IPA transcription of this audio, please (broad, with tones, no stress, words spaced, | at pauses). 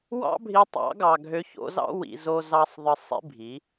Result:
wɑ̰˦bʱi˧ tˤɑ̰˨˦ɡɑ˨ ɡʱø˧ ço̰˧zɑ̰˦ wḭ˧zo˦zɑ˦sˤ ðˤɯ˧sˤḭ˦bʱi˨˦